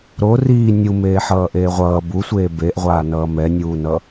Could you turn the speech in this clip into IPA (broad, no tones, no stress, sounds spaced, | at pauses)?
ɾ o r iː nʲ u m eː ħ ʌː ʔ eː ʁʷ ʌː b u sʷ eː b e ʔ ʁʷ aː n ʌː m ɛ nʲ uː n ʌ